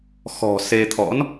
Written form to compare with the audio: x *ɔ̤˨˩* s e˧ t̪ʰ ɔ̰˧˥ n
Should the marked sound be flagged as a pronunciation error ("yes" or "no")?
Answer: no